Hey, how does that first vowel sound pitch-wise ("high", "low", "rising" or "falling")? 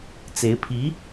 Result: rising